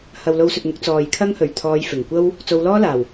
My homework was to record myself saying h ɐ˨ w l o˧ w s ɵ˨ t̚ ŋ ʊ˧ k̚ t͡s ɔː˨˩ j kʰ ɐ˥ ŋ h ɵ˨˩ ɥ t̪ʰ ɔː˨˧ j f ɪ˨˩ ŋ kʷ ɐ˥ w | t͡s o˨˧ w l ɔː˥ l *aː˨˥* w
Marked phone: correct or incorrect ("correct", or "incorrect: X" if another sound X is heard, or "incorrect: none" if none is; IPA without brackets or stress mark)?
incorrect: aː˨˩